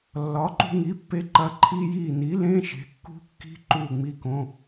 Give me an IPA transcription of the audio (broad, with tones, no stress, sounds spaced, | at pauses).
lː ɒ˩˥ ǃ ṳ˧ ŋ i˩˥ pː e˧ ǃ ɐ˧˥˧ ǃʰ iː˥ j iː˥˨ n i˩˥ l ẽ˧˥˧ ʃ e̤˩˥ kː ṳ˥ kː i̤˥ ǃ uː˥˨ ŋ͡m i˧˥˧ k õ˧˥˧